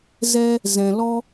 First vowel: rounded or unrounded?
unrounded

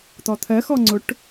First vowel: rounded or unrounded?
rounded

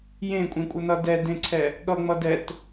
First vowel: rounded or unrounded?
unrounded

